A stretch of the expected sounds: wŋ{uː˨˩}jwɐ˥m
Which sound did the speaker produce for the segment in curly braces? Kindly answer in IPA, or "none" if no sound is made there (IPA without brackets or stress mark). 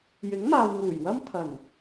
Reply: uː˨˩